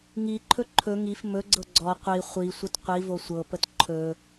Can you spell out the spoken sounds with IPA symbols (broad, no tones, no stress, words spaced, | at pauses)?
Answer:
ŋiǃʰɵ ǃʰɵ ŋif mɵɡ͡ǀɤ ɡ͡ǀɔ qʷi χʷisʷət qʷivo sʷɤpət ǃʰɵ